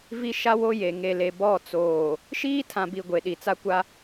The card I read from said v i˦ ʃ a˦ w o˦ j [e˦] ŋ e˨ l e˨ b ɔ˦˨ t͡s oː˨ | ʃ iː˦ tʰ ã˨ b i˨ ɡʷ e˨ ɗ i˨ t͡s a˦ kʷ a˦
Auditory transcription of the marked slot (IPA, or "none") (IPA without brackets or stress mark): e˨